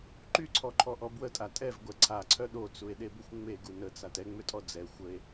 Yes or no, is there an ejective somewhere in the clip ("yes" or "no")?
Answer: yes